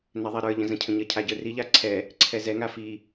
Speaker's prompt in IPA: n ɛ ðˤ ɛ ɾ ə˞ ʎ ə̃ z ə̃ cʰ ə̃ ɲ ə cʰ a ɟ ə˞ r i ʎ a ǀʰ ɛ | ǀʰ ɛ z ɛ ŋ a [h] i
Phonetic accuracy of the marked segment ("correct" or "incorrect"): incorrect